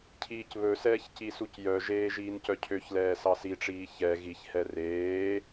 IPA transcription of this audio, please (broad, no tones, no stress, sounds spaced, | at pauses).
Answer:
cʰ iː c β ɵ s ɛː ç c i s u c j œ ʒ eː ʒ iː n c œ cʰ ø ç l ɛː s ɑ s i ʈ͡ʂ iː ç ɛ ɣ i ç h ɛ r eː